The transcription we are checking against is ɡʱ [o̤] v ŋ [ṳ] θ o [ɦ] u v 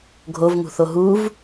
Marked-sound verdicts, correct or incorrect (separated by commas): incorrect, correct, correct